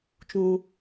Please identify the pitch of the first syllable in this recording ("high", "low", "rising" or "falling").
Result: high